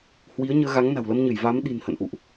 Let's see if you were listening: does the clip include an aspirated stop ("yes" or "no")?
no